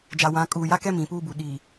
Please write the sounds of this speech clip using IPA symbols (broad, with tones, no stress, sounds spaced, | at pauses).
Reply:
d͡ʒ a˨ w ã˨˦ kʼ uː˨ j a˦ k ɛ˦ m ĩ˨ p uː˦ b u˨ ɗ i˨